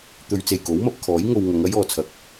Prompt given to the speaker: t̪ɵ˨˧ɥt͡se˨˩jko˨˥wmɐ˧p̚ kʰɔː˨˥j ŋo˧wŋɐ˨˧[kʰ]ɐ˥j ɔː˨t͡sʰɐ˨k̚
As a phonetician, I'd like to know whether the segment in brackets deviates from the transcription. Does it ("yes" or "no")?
yes